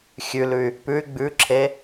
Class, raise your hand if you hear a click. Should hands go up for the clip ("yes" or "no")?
yes